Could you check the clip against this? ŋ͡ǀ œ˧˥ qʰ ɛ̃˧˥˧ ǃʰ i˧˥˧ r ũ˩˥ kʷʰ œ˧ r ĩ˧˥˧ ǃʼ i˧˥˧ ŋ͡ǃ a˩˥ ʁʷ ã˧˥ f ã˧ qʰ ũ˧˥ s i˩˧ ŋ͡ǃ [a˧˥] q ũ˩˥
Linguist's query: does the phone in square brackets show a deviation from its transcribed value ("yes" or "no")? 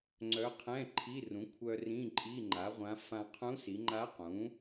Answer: no